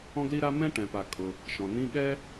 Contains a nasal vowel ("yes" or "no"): yes